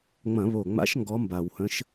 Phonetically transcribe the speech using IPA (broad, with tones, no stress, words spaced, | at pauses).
ŋ͡mɐ̃˧˩˧βo˨˩ŋ͡ma̰˧˥ʃ ŋɡɔ˧˥mba˨˩w hə̃˧˥ʃ